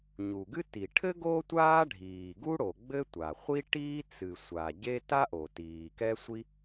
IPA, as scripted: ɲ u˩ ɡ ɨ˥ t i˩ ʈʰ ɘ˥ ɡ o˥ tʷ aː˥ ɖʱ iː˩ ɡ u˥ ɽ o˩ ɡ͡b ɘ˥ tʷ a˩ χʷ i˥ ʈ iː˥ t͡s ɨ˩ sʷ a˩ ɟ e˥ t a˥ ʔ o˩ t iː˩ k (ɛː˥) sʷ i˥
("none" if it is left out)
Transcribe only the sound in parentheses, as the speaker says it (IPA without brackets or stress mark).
ɛ˥